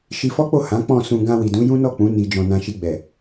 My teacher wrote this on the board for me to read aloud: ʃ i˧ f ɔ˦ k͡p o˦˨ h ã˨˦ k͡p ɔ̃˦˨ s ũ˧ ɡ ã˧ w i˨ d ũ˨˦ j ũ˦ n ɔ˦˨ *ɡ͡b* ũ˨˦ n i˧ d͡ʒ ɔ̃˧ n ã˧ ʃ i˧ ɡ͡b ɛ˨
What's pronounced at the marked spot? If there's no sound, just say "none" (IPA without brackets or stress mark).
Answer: k͡p